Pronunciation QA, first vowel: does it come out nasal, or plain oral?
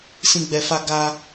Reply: nasal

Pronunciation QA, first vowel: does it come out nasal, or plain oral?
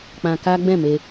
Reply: nasal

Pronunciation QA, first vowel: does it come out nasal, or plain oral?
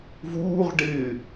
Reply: oral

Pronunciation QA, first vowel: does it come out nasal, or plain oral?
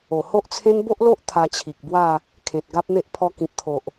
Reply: oral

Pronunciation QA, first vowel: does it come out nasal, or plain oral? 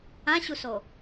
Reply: nasal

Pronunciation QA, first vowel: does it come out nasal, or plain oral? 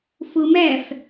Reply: oral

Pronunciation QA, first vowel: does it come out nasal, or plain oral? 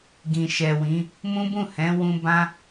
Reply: nasal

